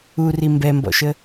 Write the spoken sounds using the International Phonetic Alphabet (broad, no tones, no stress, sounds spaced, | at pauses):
u r i m b ɛ m b ɔ̰ ʃ ə